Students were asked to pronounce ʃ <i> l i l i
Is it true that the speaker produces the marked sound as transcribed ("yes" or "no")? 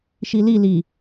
yes